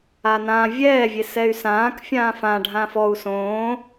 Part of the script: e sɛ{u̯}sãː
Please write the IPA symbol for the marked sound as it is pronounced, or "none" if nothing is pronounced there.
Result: y̯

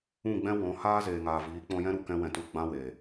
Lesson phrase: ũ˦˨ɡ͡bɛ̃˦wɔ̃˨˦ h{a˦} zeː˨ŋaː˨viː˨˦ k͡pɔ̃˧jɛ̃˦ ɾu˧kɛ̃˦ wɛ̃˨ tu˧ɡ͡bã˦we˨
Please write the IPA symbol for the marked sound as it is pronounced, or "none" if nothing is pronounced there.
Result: aː˦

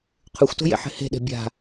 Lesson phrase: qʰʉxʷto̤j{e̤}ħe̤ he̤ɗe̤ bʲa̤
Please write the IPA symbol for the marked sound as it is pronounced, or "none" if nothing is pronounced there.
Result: ḛ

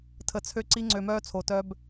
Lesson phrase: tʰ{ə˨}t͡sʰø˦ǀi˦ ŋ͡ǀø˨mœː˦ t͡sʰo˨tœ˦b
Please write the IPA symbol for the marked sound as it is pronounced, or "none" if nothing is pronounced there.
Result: ə˨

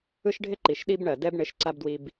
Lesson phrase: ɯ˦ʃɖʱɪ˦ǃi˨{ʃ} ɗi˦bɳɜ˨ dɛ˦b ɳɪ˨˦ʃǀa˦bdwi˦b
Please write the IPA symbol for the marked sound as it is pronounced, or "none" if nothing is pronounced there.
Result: ʃ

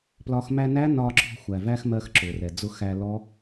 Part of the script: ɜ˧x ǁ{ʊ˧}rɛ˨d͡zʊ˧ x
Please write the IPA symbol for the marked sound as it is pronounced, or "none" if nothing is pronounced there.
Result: ʊ˨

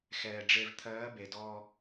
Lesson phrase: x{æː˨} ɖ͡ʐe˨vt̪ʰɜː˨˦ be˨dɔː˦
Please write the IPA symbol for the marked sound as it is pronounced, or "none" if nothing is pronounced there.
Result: ɛː˨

